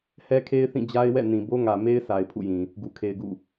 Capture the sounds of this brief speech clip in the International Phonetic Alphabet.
h ɛ˦ kʰ e˦ ɪ̯ θ ĩ˦˨ d͡ʑ a˦ ɪ̯ w ɛ̰˦˨ n ĩ˨ b o˦ ŋ ä˨ m e˦ ɪ̯ s a˨ ɪ̯ pʰ ṵ˦˨ j ĩ˨ | ɡ u˨ kʰ e˨ ɪ̯ ɡ ṵ˦˨

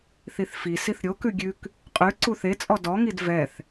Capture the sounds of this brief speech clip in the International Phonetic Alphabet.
θ i θ f i s i θ ɾʲ o k ʉ ɡʲ ʉ k | qʼ ʉ ǀ u θ e t͡sʼ ɔ d ɔ ŋ i d v ɛ θ

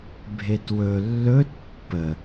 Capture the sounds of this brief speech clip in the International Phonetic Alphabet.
bʱ e t w ɵ lː ɵ t pː ə

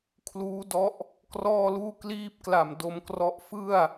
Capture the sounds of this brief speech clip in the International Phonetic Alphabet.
kʰ l uː˦˥ d ɔ˦˥ ʔ | k r ɔː˥˩ l uː˥˩ k l iː˥˩ p̚ k l a˨˩ m d o˧ m k r ɔ˦˥ ʔ f ɯ˥˩ a̯

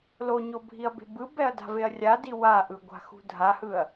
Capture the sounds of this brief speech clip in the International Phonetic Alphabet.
l o ɲ o bʱ i ɐ̯ b e̤ b ɯ b ɛ ɐ̯ d a̤ v e ɐ̯ rʲ a d i w a ʔ ɯ ɡʷ a̤ x ṳ dʱ a h ɯ ɐ̯

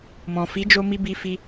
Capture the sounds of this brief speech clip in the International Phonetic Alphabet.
m ɔ̃˨ f i˨˦ d͡ʒ o˧ m i˧ b i˧ f i˧

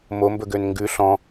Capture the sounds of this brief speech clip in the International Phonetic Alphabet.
m o m b ɵ ɡ ø n ŋ ɡ ʉ ɬ ɔ̃

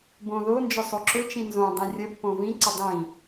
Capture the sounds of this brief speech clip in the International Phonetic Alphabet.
b õ ð o n d͡ʒ ɵ sˤ o ǁ ɵ t͡ʃ ĩ n z õ dˤ ĩ rʲ ə pː õ v ĩ ǀ ə dˤ ĩ

